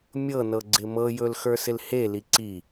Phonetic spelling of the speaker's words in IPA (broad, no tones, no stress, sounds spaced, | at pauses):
mʲ ɤ n ɤ ɡ͡ǀ ɪ m ɤ j ɵ l x ə˞ s ɪ l h e l i ǀ i